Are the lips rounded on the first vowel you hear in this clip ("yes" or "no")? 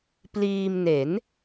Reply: no